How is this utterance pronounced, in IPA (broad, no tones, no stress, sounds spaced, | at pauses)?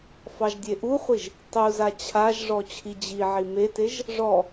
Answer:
f ɑ ʒ dʲ e ʔ u χʷ i ʒ | tˤ u z a t͡ɕʰ a ʒ ʐ ɔ t͡ɕʰ i d͡ʑ i ʕ i m e t e ʒ | ʐ ɔ